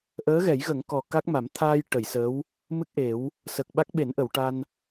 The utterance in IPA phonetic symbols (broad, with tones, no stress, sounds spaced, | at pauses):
ʔ əː˧˥ ɣ ɛ˨˩˦ j ɣ ə˨˩˦ ŋ k ɔ˨˩ k a˦˥ k̚ m a˨˩˦ m t̪ʰ aː˧ j ʈ ə˨˩˨ j s əː˧˥ w | m ɨ˦˥ k̚ ʔ e˨˩˦ w | s əː˨˩ k̚ ɓ a˦˥ k̚ ɓ e˨˩˦ n ʔ ə˨˩˨ w ʈ a˧ n